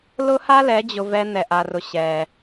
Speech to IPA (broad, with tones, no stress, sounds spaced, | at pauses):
l ʊ˦ h a˦ l ɛ˨˦ d͡ʑ ʊ˧ v ɛ˧ n̪ ɛ˨ ʔ a˨ r ʊ˨ ɕ ɛ˨